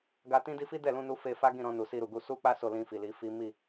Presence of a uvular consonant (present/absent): absent